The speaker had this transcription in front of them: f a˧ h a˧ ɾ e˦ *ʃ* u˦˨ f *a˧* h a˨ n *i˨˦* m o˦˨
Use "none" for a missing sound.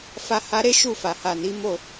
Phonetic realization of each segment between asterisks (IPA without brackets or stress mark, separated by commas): ʃ, a˨, i˨˦